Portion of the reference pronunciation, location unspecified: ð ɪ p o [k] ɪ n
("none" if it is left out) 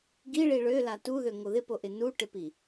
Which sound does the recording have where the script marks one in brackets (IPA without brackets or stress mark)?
ʔ